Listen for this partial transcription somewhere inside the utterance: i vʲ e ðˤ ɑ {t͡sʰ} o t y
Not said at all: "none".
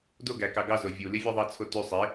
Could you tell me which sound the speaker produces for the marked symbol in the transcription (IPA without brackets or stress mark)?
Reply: t͡sʰ